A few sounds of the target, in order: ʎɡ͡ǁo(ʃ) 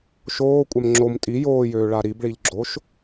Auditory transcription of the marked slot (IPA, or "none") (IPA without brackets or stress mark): ʃ